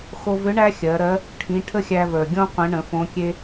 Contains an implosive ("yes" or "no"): no